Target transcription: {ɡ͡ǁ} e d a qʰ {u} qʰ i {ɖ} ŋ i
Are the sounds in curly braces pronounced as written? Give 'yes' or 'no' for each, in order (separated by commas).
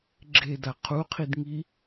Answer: yes, yes, no